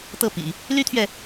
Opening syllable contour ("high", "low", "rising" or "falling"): falling